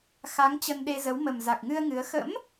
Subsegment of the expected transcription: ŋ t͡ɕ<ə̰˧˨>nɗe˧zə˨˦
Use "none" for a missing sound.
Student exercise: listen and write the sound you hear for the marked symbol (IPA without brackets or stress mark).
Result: ə˧